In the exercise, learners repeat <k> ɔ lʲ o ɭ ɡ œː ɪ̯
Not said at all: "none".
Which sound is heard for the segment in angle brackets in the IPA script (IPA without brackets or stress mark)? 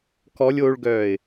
k